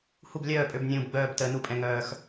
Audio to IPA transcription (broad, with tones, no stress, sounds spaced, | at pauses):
h u˥˨ b lʲ œː˥˨ pʼ ø˥˨ b nʲ ũː˧ b ɡ͡b œː˥˨ b t əː˧ n u˥˨ pʼ ɛ̃˧ ŋ œː˧ x